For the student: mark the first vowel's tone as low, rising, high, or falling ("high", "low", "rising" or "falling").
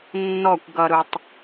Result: falling